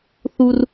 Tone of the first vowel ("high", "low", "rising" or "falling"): high